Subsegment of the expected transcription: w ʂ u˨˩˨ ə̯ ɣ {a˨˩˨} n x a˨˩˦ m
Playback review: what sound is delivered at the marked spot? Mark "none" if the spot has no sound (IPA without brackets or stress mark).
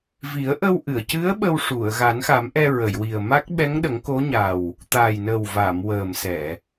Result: a˨˩˦